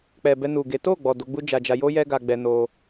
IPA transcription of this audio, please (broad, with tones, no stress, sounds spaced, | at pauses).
k͡p ɛ˨ b ɛ˧ n u˨ ɡ e˨˦ t o˦˨ ɡ͡b ɔ˨ d o˨˦ ɡ͡b u˦ d͡ʒ a˧ d͡ʒ a˧ j o˦ j ɛ˦ ɡ a˧ ɡ͡b ɛ˧ n o˧